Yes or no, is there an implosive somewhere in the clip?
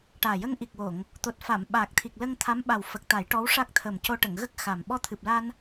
yes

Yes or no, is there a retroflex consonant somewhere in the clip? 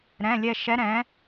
no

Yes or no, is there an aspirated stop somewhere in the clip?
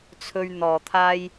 yes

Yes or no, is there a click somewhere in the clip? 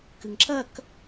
yes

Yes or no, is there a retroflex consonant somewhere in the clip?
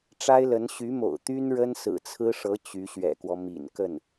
yes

